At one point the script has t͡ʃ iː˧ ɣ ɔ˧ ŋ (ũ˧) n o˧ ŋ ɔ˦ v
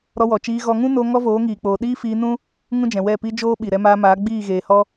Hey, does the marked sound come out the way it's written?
no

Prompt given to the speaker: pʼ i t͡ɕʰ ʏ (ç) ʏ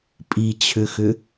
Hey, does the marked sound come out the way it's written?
no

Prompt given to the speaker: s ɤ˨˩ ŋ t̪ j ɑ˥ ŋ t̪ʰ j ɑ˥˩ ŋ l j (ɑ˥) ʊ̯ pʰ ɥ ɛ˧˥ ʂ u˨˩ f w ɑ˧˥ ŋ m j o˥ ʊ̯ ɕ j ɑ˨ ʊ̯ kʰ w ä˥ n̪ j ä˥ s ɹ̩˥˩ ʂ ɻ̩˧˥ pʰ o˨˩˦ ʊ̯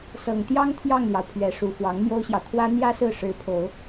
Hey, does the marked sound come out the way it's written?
no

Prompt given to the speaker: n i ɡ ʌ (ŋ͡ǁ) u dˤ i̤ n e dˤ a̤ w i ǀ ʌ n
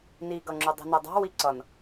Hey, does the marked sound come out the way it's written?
yes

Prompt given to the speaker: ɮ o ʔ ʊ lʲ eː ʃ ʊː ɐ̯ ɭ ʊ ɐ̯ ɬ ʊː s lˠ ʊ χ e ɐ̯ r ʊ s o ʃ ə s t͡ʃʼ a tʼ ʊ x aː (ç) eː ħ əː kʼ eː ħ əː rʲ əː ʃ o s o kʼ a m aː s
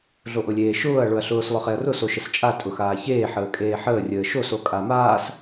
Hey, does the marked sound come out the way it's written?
yes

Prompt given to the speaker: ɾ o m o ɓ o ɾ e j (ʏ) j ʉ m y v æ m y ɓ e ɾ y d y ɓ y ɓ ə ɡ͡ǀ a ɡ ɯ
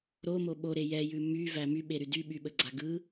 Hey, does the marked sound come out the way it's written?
no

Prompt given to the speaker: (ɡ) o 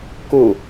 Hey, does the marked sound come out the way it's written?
no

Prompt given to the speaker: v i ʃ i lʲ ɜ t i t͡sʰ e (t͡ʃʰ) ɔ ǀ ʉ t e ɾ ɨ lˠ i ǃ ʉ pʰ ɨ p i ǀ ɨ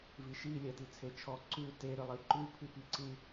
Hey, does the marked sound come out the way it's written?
yes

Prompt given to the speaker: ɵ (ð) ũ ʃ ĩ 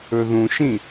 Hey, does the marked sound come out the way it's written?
yes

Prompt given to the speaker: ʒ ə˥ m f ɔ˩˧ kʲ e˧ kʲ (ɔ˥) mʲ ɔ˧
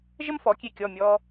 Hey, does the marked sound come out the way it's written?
no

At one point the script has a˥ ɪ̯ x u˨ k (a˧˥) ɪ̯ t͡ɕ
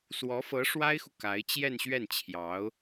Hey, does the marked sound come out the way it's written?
yes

